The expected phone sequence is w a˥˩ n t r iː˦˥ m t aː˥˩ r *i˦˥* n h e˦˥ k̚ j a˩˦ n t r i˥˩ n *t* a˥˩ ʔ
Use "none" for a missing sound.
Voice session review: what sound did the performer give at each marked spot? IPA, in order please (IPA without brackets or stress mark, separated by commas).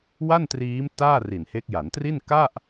i˨˩, k